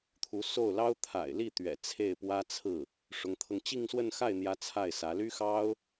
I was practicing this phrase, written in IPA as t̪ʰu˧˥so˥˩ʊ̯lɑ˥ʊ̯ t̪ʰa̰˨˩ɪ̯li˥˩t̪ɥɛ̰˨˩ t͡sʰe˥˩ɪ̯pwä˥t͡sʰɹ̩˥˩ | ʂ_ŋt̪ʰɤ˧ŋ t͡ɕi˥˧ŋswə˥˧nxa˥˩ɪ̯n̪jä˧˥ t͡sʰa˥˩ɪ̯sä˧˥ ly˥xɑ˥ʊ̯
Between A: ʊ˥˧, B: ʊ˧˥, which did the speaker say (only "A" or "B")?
B